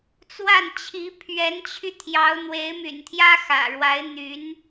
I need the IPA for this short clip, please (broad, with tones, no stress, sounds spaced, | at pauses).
t͡s w a˥˩ n t͡ɕʰ i˧˥ pʰ ɥ ɛ˧˥ n t͡ɕʰ y˧ t̪ʰ j ɑ˧˥ ʊ̯ n̪ w e˧˥ ɪ̯ m y̰˨˩ n t̪ʰ j ä˥ x ä̰˨˩ ɻ w a˧˥ ɪ̯ n̪ y˧˥ n